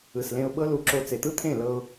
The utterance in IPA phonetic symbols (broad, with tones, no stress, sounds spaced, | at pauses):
ɯ˨ s l ẽ˧ ʊ̯ ɓ ɤ˦ l u˧ ǁ o˧ t͡s e˨ t̪ ɯ˦ t̪ʰ ẽ˦˨ l ɤ˧ ʊ̯